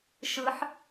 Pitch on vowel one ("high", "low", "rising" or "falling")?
rising